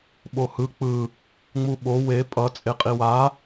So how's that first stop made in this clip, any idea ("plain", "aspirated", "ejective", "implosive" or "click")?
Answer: implosive